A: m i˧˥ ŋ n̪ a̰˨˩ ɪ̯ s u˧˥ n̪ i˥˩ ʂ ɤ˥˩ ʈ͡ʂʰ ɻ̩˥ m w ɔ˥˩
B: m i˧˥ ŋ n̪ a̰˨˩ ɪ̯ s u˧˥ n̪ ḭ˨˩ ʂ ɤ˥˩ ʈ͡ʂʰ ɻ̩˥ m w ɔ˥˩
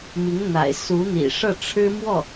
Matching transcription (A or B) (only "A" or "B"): B